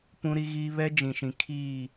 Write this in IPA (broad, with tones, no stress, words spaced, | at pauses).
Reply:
pũ˦ɾi˦ɣiː˦ βɛ˦ d͡ʒĩ˨ʃĩ˨ kʰiː˦˨